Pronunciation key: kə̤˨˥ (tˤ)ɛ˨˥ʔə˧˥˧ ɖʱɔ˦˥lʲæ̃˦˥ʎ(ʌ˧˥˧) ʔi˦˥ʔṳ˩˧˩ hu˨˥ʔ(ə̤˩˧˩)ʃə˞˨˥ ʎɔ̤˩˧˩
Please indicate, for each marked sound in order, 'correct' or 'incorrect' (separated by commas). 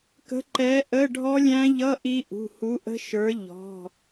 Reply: incorrect, correct, incorrect